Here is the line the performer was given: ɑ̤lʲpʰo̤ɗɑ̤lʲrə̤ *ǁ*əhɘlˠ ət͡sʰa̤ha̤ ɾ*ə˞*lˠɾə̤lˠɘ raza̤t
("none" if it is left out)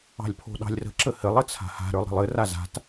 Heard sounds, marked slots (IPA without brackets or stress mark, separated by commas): ǁ, ə˞